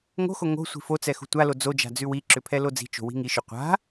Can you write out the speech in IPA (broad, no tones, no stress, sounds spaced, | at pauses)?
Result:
ŋ o̤ x o ŋ o̤ sʷ i̤ f o t͡s ɛ x ṳ tʷ a l o d͡z o d͡ʒ a̤ d͡z ʉ w i ǁ ʏ pʰ ɛ l o d͡z i̤ t͡ʃ o̤ w i̤ ŋ i ʃ ʏ qʷ a̤